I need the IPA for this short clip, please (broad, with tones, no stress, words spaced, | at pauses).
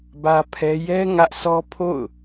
bä˦pʰɛ˦ jɛ˦ ŋä˦ʔ sʰɔ˦pʰo̰˦˨ʊ̯